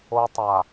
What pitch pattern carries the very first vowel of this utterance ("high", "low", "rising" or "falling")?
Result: high